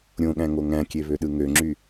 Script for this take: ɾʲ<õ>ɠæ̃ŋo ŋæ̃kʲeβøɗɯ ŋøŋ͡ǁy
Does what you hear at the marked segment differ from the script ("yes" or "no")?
no